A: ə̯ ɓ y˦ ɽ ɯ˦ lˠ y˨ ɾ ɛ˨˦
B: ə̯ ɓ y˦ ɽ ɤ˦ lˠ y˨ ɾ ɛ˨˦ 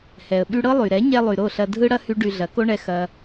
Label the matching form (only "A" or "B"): B